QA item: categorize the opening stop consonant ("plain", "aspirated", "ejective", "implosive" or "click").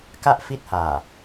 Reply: plain